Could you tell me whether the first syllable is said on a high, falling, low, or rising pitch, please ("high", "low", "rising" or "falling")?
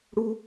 high